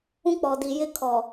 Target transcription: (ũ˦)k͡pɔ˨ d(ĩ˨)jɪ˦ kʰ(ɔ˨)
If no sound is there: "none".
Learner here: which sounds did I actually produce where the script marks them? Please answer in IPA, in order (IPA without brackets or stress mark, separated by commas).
ũ˦, i˨, ɔ˨